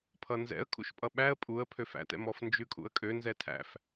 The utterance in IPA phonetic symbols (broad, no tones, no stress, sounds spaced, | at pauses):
pʰ ʌ n z ɛ̰ ə̯ kʰ ṵ ʃ pʼ ʌ ɓ æ ə̯ pʼ u ə̯ pʰ ø f æ̰ t ɛ̰ m ɔ f n d͡ʒ ʉ kʼ ṵ ə̯ kʼ ø n z ɛ tʰ æ̰ f